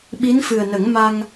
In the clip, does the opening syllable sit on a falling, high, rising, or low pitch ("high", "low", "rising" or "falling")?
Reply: rising